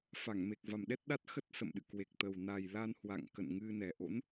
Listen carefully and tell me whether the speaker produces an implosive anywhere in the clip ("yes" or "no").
yes